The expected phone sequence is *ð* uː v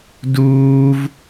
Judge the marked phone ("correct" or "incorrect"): incorrect